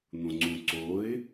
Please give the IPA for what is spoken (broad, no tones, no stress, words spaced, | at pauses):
n̪õŋ͡ǀũǀoɪ̯